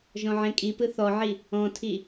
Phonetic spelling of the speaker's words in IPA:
ʒ ɔ̃ ʕ ẽ kʼ i p ɯ θ ɔ ʕ i | ɔ̃ tʰ i

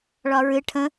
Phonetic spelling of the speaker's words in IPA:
ɭ ɒ ɹ ɨ ʈʰ ə̃

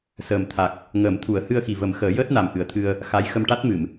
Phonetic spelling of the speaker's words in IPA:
s əː˨˩ m t̪ʰ a˨˩ k̚ | ŋ əː˨˩˦ m t̪ʰ u˨˩˦ ə̯ h ɨ˧ ə̯ x i˨˩ v ə˨˩˦ m x əː˨˩˦ j əː˦˥ t̚ n a˨˩ m ʔ ɨ˨˩˦ ə̯ t̪ʰ ɨ˧ ə̯ | x a˧˥ j x ə˧ m ʈ a˦˥ t̚ m ɨ˨˩˨ m

